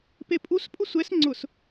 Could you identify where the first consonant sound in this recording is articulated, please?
labial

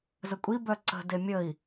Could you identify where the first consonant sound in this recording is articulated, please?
alveolar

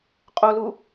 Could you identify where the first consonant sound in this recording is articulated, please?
uvular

